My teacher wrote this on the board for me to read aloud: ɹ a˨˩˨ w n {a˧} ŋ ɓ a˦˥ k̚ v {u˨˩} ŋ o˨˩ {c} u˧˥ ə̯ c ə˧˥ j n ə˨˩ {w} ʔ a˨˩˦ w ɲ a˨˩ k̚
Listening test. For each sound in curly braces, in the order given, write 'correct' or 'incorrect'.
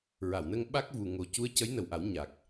incorrect, correct, correct, correct

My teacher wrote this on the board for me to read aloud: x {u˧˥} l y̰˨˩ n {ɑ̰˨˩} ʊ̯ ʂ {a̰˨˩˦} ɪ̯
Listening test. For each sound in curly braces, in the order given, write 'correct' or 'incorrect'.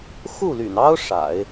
incorrect, incorrect, correct

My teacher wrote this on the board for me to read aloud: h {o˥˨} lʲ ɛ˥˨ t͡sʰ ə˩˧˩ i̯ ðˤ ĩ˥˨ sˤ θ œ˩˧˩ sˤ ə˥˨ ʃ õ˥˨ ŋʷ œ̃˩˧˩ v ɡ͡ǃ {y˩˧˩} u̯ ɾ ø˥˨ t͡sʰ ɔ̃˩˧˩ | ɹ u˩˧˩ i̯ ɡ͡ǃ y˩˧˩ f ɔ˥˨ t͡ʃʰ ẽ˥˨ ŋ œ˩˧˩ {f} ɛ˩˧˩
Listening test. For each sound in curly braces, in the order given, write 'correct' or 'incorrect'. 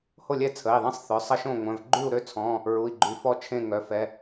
correct, incorrect, correct

